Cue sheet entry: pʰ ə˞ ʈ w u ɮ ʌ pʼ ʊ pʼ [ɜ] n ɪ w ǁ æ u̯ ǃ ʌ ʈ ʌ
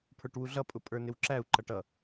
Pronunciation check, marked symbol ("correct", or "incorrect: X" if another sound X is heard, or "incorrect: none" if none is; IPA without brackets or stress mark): incorrect: ə˞